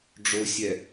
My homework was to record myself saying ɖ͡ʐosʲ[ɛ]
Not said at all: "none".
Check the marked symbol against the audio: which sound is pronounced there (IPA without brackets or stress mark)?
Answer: ɛ